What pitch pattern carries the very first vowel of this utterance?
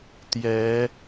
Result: rising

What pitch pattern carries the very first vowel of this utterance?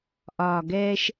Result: low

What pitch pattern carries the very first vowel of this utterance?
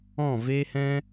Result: falling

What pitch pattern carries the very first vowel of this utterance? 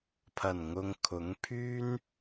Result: low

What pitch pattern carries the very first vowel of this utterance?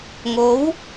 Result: rising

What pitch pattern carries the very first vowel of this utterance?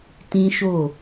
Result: high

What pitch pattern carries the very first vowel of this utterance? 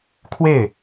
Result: falling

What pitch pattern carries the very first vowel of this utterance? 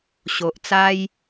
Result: low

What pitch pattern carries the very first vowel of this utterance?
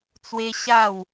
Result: high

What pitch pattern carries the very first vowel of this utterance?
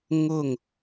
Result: falling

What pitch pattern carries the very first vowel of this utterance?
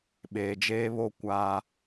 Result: low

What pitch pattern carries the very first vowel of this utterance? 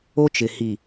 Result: high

